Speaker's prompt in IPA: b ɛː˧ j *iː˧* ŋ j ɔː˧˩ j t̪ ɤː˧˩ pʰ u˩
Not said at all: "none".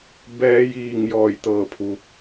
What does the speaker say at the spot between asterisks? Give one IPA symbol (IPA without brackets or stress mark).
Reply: iː˧˩